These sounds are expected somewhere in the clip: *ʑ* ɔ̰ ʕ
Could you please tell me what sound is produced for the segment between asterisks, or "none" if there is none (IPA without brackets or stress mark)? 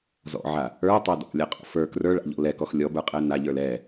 z